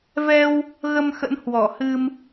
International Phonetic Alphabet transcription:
v ɛ˧ w | ɣ ə˧ m x ə̰˧˥ n h w ɔ˧˩ h ɨ˧ m

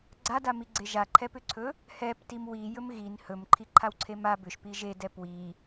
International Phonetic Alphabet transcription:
ɡ͡ǀ a d a m i ɡ͡ǀ e ʒ a ǃʰ ɛ p ʏ ǀʰ ɵ | h ɛ p t i m w i j ɵ m ɣ i n h ɵ m ǃʰ i ǃʰ a w ǀʰ e m a b ʏ ʃ p i ʒ e d ɛ p w i

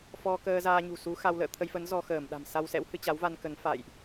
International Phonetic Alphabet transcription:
f ɔ˧ k əː˧ z aː˧ ɲ ṳ˨˩ s u˨˦ x a˧ w l ə̰ː˧˨ t̪ʰ ə˧ j f ə˨˦ n z ɔ˧ x əː˧˩ m ɗ a̤˨˩ m s a˧ w s ɛ̰˧˥ w h ɨ˧ t͡ɕ a˨˦ w v a˧ n k ə˨˦ n f a̰˧˨ j ʔ

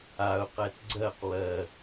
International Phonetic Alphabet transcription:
a ʊ̯ q ɛ t ɡ͡ǀ ɜ q w ɜ

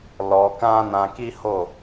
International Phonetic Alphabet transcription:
l ɔ˧ k ã˦ n ã˧ k i˦ h o˦˨

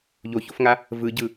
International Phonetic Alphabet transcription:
ʎ o ç o f ŋ a | v ɯ ɟ ɯ

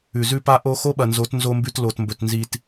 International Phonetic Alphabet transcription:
ʉ˨ z ʉ˦ p a˦ ʔ o˦ x o˦ ɓ ɐ˨ n z o˨˦ t n z o˦ m b ʉ˦ t l o˨ t m b ɵ˨ t n z i˨ t

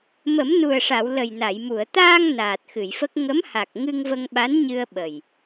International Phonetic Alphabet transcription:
m ə˨˩˦ m n u˨˩ ə̯ ʂ a˨˩˨ w l ə˨˩ j n a˨˩˨ j m u˨˩˨ ə̯ t̪ aː˧ ŋ n aː˨˩ t̚ x ɨ˨˩˨ j f ə˦˥ k̚ ŋ ə˧˥ m h a˨˩ k̚ ŋ ɨ˧ ŋ v ə˧ ŋ ɓ a˧˥ n ɲ ɨ˧ ə̯ ɓ ə˨˩ j

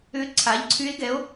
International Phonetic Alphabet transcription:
ʏ˧˥ ǀʰ a˩˥ ʎ ǀʰ y˧˥ e̯ ɡ ɛ˩˥ o̯

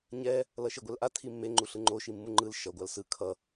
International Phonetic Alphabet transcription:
ɲ ɛ | l ʌ ʃ e ɡʷ ɛ l ʔ a tʰ i mː e ŋ͡ǃ u ɬ ɯ ŋ͡ǃ o ʃ i mː u ŋ͡ǃ ɯ l ʃ ʌ ɡʷ a l s ɯ kʰ ʌ

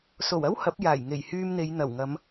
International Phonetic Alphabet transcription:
s o˨˩ w ɐ˥ w h ɐ˨˥ p̚ j aː˨˩ j ŋ e˨˩ j h yː˧ m n̪ e˨˧ j n̪ ɐ˨˩ w ŋ ɐ˨˧ m

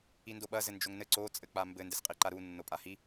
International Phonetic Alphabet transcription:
i n d o ɓ ɐ z ɘ n d͡ʒ o ŋ n ɘ ǀ o t͡sʼ ɘ k͡p a m b ɘ n d ɘ s qʼ i ǃ a ɾ u nː o pʼ a h i

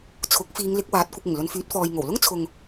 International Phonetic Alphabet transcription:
t͡sʰ ʊ˨˥ k̚ f iː˨˧ ŋ l ɪ˨˥ k̚ w aː˨˥ t̚ kʷ ɪ˨ k̚ ɪ˨˩ ŋ l ɵ˨˧ n f yː˨˥ t̚ f ɔː˨ j ŋ o˨˩ w l ʊ˥ ŋ t͡sʰ ʊ˧ ŋ

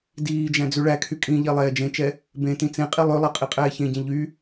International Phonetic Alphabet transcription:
d iː d͡ʒ æ̃ d͡z ʉ ɭ æ kʰ y kʼ ĩ ʎ ɛ lˠ ɛː d͡ʒ ẽ t͡ʃ ɛ | b ẽ t ĩ t͡s ẽ qʼ i lˠ ø lˠ ɛ qʼ i qʼ ɛː ç ẽ ɟ ẽ ʎ y

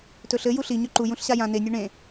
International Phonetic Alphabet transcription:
t ɵ ɬ ɘ j u ɬ i ɲ ɵ ǃ u j ũ ɬ ɕ a j ã n e nʲ o ɳ ẽ

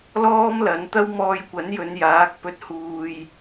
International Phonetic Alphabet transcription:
l ɔː˥ m l ɐ˨˧ n t̪ ɐ˥ w m ɔː˧ j kʷ ɐ˨˥ n j ɵ˨˧ n j aː˨˥ k̚ p ɵ˧ t̚ h uː˨ j

